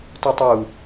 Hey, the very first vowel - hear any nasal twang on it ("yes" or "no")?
no